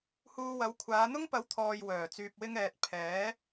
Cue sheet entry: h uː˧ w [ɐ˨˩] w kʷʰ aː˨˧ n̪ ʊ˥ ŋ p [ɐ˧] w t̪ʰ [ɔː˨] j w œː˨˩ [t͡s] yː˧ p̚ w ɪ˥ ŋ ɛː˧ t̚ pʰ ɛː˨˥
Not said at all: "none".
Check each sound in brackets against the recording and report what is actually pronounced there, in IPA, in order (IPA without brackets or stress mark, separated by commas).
ɐ˨˥, ɐ˨˥, ɔː˨, t͡s